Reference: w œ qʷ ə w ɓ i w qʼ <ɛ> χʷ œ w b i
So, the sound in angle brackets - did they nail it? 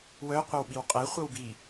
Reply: yes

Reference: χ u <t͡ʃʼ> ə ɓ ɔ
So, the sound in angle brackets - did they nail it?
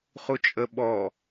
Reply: yes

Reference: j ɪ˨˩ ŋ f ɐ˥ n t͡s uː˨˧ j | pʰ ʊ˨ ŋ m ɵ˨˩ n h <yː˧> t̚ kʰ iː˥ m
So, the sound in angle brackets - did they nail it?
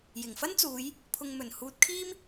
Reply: no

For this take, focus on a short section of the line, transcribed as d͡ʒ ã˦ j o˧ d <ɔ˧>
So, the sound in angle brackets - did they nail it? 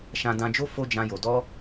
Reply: no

